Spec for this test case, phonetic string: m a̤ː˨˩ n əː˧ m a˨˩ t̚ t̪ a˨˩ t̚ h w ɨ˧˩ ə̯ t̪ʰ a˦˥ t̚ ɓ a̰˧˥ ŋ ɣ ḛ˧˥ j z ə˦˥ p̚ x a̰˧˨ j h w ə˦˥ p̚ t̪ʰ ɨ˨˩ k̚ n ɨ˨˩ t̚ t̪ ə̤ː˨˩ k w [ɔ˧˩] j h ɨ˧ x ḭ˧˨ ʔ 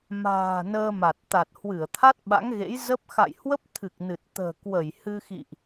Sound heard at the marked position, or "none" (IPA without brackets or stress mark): ə˧˩